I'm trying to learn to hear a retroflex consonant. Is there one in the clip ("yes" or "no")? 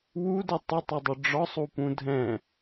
yes